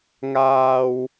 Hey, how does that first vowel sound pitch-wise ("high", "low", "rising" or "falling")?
high